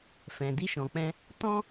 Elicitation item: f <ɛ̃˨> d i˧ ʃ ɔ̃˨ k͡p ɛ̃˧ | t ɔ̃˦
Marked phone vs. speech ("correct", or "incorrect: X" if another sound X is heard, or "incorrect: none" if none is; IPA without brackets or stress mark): correct